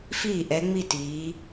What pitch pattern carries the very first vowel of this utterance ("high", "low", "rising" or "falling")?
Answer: falling